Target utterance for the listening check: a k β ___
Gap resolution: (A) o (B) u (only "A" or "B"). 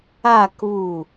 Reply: B